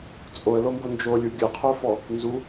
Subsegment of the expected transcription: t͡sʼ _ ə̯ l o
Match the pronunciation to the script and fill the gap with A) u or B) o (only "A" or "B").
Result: B